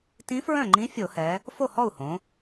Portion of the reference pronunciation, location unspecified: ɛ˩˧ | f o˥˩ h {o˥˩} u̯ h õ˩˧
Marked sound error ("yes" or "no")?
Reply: yes